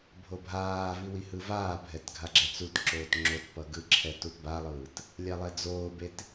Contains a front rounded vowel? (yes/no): no